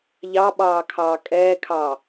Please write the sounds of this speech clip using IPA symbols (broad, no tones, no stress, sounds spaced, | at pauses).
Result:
ʎ ɑ ɓ ɑː kʰ ɑː kʼ ɛː kʰ ɑː